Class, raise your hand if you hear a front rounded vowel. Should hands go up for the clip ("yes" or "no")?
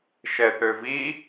yes